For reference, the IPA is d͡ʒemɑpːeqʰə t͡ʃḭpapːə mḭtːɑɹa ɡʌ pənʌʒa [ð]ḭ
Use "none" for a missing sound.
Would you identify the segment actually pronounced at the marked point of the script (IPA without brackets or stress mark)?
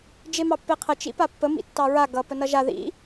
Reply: ð